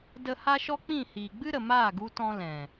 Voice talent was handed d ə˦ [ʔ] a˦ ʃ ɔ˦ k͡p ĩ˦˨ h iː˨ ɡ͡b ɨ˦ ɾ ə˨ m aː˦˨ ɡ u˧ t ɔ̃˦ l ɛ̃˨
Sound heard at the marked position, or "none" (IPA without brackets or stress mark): h